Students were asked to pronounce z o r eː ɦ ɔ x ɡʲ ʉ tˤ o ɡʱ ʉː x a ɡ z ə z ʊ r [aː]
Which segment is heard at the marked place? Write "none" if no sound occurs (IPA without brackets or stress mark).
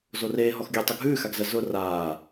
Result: aː